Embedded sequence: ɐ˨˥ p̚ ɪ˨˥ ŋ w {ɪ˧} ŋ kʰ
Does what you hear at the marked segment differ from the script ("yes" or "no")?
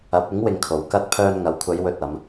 no